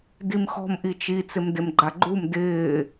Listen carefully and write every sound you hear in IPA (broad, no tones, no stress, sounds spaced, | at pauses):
d i m x ɔ̤ m ʔ i t͡ʃ i t͡s ɪ m d e m ɡ͡ǃ a ɡ͡ǃ u m d ɪː